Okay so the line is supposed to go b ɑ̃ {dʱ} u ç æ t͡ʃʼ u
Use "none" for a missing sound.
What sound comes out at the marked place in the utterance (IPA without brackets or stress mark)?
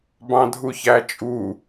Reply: dʱ